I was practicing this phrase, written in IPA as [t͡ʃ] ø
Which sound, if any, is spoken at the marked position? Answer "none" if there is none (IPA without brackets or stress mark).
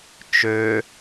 t͡ʃ